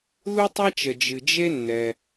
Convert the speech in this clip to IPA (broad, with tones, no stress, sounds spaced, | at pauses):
ð u˥ tˤ a˥ t͡ʃ ə˩ d͡ʒ ɨ˩ d͡ʒ e˥ nː ɛ˩